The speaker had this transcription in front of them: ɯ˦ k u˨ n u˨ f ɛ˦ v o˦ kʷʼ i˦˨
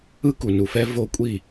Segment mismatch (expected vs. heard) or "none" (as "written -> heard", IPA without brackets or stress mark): none